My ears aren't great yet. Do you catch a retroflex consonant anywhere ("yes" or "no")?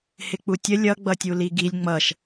no